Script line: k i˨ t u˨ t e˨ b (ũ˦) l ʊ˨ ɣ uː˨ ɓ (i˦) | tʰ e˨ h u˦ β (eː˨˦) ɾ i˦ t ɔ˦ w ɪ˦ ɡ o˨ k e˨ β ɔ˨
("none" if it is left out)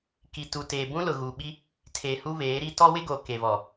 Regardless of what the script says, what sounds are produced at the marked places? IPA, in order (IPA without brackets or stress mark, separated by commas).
ũ˦, i˦, eː˨˦